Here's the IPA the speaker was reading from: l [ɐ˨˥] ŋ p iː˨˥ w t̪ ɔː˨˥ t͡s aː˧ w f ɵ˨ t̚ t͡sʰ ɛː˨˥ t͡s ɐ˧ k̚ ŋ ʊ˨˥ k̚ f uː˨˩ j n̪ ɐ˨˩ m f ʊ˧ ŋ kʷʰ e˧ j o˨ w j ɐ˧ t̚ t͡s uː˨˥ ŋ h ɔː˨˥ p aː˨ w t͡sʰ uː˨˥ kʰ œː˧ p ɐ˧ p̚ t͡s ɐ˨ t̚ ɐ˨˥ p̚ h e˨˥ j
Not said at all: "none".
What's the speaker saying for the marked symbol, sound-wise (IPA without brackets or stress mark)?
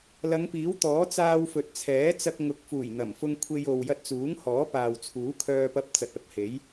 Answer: ɐ˨˧